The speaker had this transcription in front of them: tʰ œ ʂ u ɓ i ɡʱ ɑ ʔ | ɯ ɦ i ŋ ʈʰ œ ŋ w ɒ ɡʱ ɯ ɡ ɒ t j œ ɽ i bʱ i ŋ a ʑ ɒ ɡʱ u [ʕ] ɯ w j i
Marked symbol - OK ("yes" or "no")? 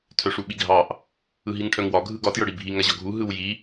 no